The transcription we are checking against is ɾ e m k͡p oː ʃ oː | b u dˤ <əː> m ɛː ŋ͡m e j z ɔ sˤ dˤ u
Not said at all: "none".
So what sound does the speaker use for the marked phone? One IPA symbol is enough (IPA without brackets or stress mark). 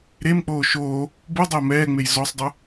əː